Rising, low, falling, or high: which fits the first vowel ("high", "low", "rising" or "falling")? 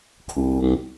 low